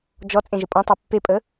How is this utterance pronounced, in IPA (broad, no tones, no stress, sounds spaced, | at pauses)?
d͡ʒ ɔ t͡sʼ ẽ ʒ ə pʼ ɔ̃ tˤ e pː e pʼ ə